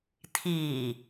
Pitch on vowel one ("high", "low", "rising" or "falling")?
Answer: low